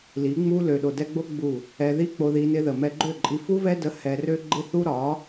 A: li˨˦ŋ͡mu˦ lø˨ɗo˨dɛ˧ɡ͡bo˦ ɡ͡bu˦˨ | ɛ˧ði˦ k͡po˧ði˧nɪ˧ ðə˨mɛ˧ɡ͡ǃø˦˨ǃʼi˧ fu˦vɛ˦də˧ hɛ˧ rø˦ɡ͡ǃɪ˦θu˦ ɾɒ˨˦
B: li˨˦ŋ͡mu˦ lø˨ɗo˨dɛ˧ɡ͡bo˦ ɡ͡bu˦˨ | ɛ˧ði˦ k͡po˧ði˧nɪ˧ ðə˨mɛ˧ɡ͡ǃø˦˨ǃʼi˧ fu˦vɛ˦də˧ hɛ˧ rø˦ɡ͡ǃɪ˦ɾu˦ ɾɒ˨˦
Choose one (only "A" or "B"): A